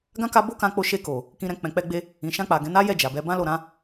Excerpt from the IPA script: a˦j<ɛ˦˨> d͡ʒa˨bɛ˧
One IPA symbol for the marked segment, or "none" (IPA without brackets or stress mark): ɛ˦˨